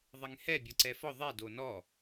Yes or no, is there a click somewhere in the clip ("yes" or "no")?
yes